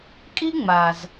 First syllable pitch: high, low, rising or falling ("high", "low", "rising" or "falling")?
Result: high